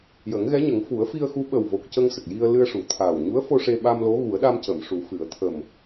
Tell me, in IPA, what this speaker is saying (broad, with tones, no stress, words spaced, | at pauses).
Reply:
jə˨˩˦ŋɣɛ˧˥ɲə˨˩˦ŋ fu˨˩˦ə̯fi˧ə̯xu˧˥ ɓə˨˩wvo˨˩k̚ cə˧ŋsə˨˩k̚ji˧ə̯ lɨ˧ə̯ʂu˨˩ t̪ʰaː˨˩wɲu˧˥ə̯fo˧ ʂe˧ ɓa˧mlo˧˥ ɣu˨˩˦ə̯ɗa˧mcə˨˩˨mʂu˨˩˦ fɨ˨˩˦ə̯ t̪ʰə˨˩m